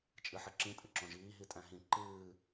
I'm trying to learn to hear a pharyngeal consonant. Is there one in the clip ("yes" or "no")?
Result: yes